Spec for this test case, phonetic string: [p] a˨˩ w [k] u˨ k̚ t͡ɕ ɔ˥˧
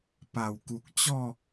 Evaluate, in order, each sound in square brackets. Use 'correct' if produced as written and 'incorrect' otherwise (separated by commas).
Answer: correct, correct